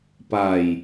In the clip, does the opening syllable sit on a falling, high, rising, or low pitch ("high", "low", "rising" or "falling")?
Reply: low